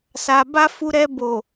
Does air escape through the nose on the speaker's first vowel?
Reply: no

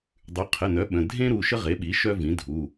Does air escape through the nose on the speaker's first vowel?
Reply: no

